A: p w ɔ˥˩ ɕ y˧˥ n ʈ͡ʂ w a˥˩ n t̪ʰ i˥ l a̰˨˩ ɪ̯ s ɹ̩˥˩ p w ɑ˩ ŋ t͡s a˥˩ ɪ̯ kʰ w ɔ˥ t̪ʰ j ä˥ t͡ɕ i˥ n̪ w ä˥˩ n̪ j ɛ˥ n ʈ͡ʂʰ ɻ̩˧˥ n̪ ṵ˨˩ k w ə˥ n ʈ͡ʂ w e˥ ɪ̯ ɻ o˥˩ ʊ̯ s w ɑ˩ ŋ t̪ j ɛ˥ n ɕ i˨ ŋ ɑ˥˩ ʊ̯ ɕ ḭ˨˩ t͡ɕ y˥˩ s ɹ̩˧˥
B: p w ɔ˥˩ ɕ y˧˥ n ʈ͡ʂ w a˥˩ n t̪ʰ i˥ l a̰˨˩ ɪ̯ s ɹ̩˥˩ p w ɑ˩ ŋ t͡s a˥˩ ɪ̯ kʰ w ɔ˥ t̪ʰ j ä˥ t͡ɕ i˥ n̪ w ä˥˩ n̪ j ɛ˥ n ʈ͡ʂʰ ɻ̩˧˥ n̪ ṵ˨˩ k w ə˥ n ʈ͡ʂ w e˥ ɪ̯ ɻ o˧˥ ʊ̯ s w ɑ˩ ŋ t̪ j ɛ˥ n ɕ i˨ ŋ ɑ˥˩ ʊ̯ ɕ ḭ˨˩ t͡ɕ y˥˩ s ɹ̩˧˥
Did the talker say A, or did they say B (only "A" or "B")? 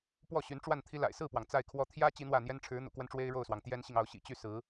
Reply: A